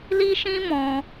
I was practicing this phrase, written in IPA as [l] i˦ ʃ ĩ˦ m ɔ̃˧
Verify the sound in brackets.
correct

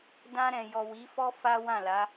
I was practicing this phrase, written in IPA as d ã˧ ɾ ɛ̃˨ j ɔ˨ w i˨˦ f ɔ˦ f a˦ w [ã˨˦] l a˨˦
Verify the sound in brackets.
incorrect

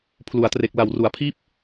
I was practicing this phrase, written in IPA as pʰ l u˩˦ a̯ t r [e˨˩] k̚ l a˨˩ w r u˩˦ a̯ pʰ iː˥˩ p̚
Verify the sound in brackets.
correct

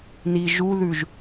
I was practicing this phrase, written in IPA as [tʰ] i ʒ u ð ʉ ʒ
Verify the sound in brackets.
incorrect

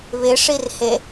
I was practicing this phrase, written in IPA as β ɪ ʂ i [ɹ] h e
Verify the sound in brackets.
incorrect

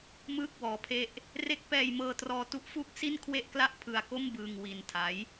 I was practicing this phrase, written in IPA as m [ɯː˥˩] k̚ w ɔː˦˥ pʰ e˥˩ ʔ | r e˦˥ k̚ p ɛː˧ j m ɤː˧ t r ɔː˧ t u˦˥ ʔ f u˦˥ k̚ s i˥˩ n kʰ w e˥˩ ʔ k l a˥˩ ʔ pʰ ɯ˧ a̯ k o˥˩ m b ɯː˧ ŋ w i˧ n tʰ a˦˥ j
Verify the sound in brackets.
correct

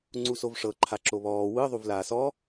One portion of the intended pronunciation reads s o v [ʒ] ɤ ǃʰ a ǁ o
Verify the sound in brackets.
incorrect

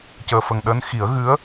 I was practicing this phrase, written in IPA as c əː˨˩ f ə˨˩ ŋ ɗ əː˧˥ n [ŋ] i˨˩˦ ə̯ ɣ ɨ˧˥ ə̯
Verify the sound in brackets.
incorrect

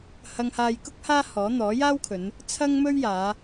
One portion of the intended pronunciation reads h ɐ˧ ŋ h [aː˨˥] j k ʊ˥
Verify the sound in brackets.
incorrect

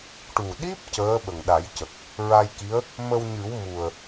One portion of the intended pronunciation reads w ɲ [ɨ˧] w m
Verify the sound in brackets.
incorrect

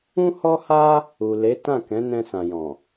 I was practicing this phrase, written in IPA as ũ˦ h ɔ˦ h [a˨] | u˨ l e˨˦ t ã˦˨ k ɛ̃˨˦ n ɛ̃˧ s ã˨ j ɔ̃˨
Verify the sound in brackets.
incorrect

